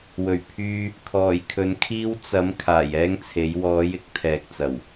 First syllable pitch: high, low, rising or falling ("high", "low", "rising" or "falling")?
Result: low